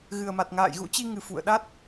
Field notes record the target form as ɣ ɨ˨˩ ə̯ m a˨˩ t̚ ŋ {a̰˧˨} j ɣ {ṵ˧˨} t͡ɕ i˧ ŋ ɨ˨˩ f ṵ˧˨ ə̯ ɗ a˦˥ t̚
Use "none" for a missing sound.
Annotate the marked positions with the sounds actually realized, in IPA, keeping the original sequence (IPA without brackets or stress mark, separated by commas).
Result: a̰ː˧˨, ṵ˧˥